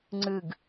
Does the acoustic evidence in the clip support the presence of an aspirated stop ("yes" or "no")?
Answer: no